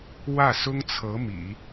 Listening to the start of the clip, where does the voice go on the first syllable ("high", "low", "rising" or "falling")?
falling